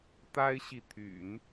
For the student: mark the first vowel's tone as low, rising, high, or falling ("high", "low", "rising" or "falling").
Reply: high